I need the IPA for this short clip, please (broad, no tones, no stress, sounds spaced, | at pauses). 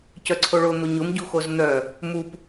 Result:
c œ ǀʰ o ɭ o n̪ o ɲ ʊ m ɟ u x o z n̪ œ | m u p